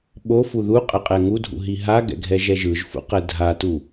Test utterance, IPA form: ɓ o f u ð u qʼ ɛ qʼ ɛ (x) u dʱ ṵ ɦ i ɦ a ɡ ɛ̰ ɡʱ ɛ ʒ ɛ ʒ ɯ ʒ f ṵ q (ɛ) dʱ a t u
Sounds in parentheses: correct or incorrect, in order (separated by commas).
incorrect, correct